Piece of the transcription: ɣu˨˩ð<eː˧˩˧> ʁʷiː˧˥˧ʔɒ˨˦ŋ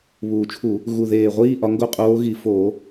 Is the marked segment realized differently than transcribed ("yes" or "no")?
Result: yes